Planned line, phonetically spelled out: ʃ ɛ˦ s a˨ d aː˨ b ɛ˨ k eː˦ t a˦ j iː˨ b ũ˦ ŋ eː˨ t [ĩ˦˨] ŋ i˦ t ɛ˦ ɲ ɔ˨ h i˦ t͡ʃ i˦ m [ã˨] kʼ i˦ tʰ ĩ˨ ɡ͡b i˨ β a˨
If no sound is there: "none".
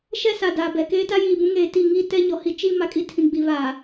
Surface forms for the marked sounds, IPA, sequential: i˦˨, a˨

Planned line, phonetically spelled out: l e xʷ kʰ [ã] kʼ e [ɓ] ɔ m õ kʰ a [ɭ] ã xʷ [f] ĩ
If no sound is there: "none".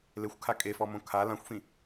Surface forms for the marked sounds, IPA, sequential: a, f, l, f

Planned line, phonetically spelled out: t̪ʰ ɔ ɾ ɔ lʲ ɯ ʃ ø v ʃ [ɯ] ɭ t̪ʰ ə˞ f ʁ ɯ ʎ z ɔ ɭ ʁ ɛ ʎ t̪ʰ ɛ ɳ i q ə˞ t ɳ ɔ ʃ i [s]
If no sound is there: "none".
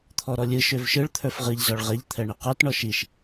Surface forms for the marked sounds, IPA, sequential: ɯ, ʃ

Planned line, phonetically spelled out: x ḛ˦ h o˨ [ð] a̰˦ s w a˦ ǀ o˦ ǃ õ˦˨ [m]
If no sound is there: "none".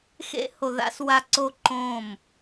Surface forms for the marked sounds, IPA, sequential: ð, m

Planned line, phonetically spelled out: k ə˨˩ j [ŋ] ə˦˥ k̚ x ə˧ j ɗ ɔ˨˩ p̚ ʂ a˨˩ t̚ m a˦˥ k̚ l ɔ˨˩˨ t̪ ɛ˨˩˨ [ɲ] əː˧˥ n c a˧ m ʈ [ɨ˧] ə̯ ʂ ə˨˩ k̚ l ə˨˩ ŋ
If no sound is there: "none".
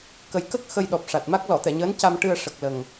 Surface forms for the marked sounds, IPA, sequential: k, ɲ, ɨ˧

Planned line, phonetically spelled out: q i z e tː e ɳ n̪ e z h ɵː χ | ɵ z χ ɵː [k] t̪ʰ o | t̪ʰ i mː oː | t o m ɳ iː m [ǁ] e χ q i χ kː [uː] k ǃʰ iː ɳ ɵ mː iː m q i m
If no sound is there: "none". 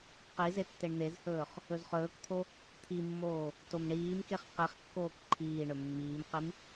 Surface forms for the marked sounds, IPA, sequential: k, k, oː

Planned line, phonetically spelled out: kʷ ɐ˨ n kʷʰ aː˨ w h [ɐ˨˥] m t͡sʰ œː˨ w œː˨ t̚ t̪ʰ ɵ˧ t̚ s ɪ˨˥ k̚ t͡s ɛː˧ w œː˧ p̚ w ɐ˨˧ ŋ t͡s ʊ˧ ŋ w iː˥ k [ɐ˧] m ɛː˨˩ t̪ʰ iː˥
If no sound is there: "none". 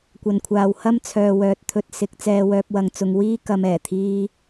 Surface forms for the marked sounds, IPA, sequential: ɐ˥, ɐ˧

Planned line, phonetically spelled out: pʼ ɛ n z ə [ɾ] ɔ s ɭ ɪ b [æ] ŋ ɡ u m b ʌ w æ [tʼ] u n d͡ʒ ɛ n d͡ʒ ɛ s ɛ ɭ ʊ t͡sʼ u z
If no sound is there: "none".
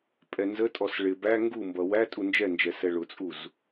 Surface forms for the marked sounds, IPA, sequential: tʼ, æ, tʼ

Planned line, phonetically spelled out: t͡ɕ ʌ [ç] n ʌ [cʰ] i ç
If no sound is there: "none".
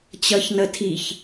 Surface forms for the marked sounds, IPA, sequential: ç, tʰ

